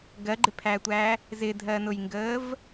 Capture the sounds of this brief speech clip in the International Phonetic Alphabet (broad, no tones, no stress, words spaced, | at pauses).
ɡɜɡ͡ǃɪpʰæːtʷæː | zɪdʱɜnʊjŋɡəːv